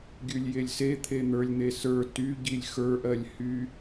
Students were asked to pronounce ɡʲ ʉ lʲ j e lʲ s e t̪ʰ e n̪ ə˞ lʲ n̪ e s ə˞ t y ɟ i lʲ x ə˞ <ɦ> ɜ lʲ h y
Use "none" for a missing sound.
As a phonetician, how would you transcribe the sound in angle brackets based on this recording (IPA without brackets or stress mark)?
ʔ